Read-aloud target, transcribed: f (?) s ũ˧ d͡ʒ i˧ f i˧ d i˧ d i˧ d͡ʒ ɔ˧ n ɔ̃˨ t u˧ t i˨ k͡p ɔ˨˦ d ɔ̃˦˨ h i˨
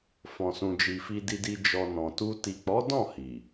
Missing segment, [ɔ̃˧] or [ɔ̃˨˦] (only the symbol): ɔ̃˧